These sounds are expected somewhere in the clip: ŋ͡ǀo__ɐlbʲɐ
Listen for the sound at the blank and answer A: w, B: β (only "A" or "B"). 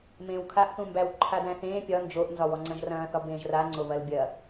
B